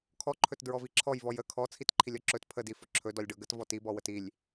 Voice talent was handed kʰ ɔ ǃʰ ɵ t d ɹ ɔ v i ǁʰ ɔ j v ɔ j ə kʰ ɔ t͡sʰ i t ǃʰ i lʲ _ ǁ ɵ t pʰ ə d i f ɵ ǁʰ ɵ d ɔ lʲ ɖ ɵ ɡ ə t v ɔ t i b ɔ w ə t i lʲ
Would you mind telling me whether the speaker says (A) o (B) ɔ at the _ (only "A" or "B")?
B